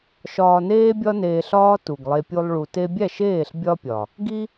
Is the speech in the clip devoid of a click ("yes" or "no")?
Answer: yes